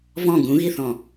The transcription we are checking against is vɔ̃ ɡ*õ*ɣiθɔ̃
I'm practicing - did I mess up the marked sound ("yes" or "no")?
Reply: yes